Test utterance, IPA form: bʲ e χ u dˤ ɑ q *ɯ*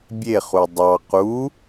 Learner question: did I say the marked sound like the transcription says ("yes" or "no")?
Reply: no